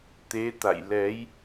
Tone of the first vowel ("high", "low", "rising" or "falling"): rising